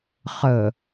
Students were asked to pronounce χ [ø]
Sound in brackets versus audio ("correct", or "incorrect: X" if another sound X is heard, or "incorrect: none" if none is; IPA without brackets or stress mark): incorrect: ə